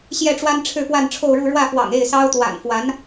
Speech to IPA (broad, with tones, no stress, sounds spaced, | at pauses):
ɕ j ɛ˥˩ ʈ͡ʂ w a˥ n ʈ͡ʂʰ ɻ̩˥˧ p w a˥˧ n ʈ͡ʂʰ o˥˧ ʊ̯ ɻ u˥˧ ɻ w ä˥˩ f w ɑ̰˨˩ ŋ e˥˩ ɪ̯ s ɑ˥ ʊ̯ t̪ w a̰˨˩ n f w a˧˥ n